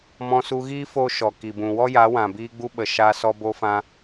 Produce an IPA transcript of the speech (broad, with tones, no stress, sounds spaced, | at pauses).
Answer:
m ɔ̃˧ s u˧ ɣ iː˦ f o˦ ʃ ɔ˨ k i˨ b ũ˨ w ɔ˦ j a˨˦ w ã˨ b iː˦ ɡ͡b u˦ ɓ ə˨ ʃ a˧ s ɔ˧ b o˧ f ã˧